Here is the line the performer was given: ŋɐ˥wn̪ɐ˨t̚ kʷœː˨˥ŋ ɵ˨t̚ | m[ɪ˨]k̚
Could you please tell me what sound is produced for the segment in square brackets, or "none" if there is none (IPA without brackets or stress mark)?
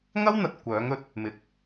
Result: ɪ˨˥